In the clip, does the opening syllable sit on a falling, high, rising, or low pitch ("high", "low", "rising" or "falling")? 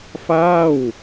falling